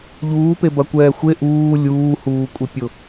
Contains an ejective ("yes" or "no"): yes